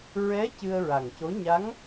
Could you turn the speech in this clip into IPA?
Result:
ɹ ɛ˧˥ c ɨ˧ ə̯ ɹ a˨˩ ŋ c o˧˥ ɲ a˧˥ ŋ

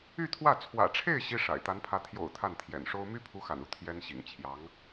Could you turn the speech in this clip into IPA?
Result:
y˥˧ t̪ʰ w ä˥˩ t͡sʰ w ä̰˨˩ ʈ͡ʂʰ e˥˩ ɪ̯ ɕ i˥ ʂ a̰˨˩ ɪ̯ t̪ a˧˥ n pʰ ä˧˥ t̪ʰ j o̰˨˩ ʊ̯ t̪ʰ a˥˩ n t̪ʰ j ɛ̰˨˩ n ʂ o˥ ʊ̯ m y˥ pʰ u˧˥ x a̰˨˩ n u˥˩ t̪ʰ j ɛ˥ n ɕ ḭ˨˩ ŋ t͡ɕʰ j ɑ˧˥ ŋ

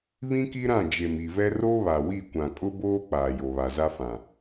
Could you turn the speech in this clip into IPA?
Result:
β ĩ˦ k i˦ ɾ ã˦˨ d͡ʒ e˨ m i˨ v ɛ˦ r o˦ β a˨ w i˦˨ kʷ ã˨ kʼ ʊ˦ b oː˦ k͡p aː˨ j o˨ β a˨ z a˦ f ã˨

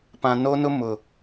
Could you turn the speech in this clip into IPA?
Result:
p ã˨ n o˦ n ʊ˦ m ʊ˨

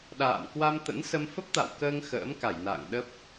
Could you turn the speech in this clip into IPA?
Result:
ɗ a̰ː˧˨ m k w a˧ m t̪ ə̰˧˥ n s ə˧ m f ə˦˥ p̚ t̪ a̰˧˨ w k əː˧ ŋ x ə̰ː˧˥ m k a˧˩ j n a̰ː˧˨ ŋ ɗ ə˦˥ p̚

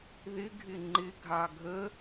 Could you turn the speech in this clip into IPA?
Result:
ð ɪ ɡʱ ɪ ŋ͡ǃ ɪ ɡʱ ɑ ɡʱ ə

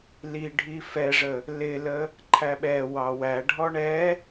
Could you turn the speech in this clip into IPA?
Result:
l i ɖʱ i f ɛ ʐ ə | l ɪ l ə | ǃʰ æ ɓ ɛ w ɑ w æ ɖʱ ɔ ɳ ɛ

